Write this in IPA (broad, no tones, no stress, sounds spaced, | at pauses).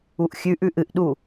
u ʔ xʲ ʉ ʔ ʉ ʔ ɨ ʔ ɗ u